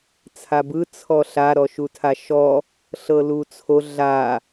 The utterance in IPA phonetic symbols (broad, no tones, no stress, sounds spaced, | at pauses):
t͡sʰ a b ɯ t͡sʰ ɔ ɬ a ɾ ɔ ʃ u tʰ a ʃ ɔ | ɬ ɤ l u t͡sʰ o ɮ a